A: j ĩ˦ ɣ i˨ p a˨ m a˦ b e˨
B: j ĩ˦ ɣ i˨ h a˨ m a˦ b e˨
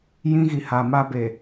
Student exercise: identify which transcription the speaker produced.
B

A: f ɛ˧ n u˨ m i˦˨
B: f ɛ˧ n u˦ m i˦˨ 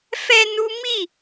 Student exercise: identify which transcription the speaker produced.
B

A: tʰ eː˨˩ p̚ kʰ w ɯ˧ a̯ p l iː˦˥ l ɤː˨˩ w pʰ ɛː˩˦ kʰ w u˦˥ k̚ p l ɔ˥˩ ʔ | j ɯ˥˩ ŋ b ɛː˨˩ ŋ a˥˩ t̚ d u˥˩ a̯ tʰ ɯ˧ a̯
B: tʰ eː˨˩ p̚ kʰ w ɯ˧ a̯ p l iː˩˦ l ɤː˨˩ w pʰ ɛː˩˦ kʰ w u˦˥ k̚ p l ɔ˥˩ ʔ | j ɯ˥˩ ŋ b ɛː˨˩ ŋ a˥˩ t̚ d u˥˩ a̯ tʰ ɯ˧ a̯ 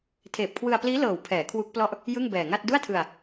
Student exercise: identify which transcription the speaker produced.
A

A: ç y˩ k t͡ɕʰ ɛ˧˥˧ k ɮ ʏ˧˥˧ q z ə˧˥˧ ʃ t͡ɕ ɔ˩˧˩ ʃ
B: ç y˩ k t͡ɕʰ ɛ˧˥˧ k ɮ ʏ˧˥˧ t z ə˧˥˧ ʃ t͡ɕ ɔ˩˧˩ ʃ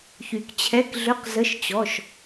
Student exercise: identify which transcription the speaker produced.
A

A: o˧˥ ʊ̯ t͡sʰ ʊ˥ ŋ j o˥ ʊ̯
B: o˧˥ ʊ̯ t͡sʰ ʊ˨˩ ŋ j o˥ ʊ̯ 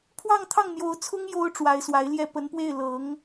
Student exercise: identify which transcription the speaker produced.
A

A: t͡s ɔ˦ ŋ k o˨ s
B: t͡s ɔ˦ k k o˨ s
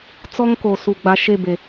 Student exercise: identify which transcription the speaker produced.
A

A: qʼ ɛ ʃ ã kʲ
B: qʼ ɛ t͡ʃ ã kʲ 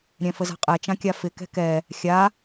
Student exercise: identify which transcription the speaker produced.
B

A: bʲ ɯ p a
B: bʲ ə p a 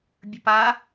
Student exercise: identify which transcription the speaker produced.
B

